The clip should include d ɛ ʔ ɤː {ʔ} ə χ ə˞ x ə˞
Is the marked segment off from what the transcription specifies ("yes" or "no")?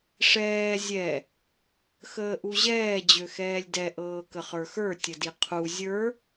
yes